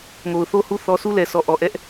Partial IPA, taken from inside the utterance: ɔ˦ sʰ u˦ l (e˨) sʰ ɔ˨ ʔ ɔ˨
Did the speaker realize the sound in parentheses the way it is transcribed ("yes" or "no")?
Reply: no